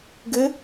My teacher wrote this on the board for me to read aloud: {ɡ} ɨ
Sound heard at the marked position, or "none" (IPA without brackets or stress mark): ɡ